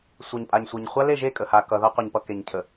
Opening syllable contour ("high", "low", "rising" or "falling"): low